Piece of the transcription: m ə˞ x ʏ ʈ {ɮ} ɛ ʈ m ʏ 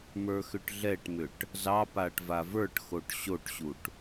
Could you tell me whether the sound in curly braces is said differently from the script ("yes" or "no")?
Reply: no